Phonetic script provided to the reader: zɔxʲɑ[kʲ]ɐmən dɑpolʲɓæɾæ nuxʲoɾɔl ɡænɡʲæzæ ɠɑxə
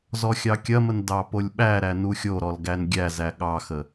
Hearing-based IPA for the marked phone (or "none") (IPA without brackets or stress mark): kʲ